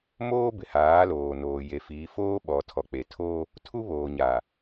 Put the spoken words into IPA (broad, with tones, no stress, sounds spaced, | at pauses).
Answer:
m oː˦ b ɪ˨ h aː˨˦ l oː˨ n oː˨ j e˨ f iː˨˦ f oː˦ ɓ ɔ˨ tʰ ɔ˨ k͡p e˨ tʰ oː˦ | tʰ u˦ β oː˨ ɲ aː˨